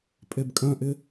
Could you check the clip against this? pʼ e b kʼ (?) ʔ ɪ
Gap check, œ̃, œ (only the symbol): œ̃